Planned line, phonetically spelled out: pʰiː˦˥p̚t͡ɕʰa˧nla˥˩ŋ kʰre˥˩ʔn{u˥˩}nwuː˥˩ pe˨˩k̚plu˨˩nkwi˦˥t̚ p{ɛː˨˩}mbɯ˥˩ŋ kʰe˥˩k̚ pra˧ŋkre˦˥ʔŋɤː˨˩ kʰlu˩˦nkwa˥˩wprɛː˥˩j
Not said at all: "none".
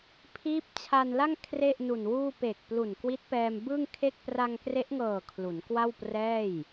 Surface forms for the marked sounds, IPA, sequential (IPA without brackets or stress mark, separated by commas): u˨˩, ɛː˧